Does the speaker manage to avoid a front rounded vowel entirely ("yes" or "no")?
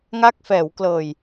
yes